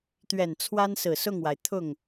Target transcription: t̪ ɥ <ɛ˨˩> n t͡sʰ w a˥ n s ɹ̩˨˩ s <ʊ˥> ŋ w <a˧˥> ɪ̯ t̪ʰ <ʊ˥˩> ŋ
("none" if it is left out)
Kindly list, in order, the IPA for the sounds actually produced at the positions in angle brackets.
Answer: ɛ˨˩, ʊ˥˩, a˩, ʊ˥˩

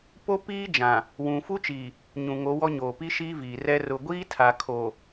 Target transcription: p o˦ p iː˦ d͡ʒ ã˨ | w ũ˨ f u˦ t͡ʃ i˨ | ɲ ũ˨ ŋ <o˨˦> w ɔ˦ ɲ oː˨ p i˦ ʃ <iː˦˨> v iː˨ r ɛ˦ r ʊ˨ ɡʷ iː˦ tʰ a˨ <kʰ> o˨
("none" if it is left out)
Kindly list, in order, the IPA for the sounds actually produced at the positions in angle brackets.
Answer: o˨˦, iː˦, kʰ

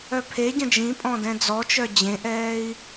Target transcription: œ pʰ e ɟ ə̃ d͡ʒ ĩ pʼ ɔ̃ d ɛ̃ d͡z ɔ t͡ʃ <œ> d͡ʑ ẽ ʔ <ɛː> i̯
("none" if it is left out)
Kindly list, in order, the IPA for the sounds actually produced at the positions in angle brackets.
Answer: œ, ɛː

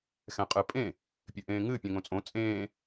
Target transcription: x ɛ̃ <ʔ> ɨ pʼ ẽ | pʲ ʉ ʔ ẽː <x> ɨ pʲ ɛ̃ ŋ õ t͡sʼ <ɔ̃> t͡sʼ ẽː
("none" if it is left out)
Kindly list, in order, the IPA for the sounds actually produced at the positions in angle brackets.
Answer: qʼ, ŋ, õ

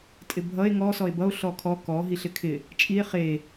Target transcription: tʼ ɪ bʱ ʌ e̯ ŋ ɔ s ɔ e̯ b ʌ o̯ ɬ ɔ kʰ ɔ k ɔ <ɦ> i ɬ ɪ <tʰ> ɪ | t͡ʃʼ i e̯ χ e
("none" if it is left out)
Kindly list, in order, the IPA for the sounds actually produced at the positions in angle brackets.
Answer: ɦ, kʰ

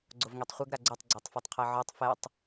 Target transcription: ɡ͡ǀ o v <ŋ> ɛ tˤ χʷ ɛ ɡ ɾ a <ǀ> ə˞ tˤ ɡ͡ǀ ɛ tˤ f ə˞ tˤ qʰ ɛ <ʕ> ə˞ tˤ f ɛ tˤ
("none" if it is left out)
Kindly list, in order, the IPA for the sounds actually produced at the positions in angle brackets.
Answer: ŋ, ɡ͡ǀ, ʕ

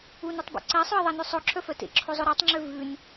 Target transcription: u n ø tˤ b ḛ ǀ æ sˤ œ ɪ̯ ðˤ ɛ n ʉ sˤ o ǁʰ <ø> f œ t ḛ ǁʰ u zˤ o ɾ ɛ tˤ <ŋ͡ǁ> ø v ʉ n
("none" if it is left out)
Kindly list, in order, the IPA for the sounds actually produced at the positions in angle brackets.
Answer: œ, ŋ͡ǁ

